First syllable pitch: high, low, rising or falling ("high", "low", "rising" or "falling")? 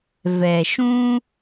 low